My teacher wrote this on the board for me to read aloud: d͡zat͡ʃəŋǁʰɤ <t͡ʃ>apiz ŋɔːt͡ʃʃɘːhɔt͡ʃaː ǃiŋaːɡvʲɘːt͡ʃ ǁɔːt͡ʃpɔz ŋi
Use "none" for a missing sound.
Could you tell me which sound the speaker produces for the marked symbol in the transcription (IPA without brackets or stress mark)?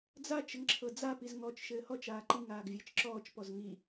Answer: d͡z